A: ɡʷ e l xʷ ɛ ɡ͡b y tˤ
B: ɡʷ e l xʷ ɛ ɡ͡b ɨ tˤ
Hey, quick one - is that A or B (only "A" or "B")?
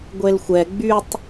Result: A